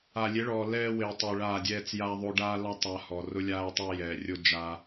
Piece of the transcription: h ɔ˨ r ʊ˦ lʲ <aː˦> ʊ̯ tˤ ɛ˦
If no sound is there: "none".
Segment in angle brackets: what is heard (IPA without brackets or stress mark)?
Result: aː˦